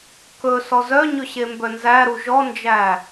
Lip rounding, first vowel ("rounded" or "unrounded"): rounded